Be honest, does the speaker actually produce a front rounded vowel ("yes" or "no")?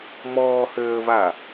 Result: yes